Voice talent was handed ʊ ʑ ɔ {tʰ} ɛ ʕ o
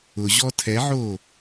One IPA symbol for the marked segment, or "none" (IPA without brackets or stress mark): tʰ